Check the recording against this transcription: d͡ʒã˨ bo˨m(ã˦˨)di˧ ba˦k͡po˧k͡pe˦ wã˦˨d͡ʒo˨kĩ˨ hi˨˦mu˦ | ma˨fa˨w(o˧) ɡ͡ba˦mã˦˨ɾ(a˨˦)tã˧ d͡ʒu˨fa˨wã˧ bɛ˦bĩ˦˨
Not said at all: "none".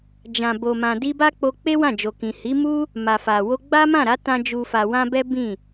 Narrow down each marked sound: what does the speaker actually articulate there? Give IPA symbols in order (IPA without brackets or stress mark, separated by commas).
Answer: ã˨, o˧, a˨˦